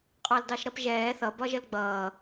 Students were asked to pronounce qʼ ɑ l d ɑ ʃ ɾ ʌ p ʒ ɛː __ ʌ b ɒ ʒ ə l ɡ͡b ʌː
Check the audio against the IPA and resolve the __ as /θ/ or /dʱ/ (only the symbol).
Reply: θ